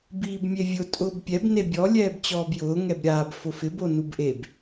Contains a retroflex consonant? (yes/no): no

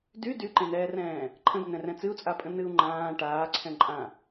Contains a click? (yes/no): yes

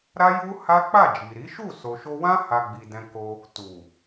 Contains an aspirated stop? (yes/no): no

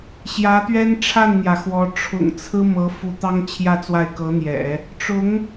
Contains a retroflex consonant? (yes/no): yes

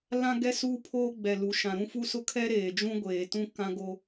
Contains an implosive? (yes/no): no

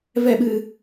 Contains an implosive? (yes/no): yes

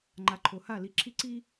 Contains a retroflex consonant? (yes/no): no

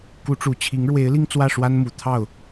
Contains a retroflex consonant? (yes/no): yes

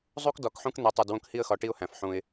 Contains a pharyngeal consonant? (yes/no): yes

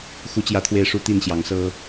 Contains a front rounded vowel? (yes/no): no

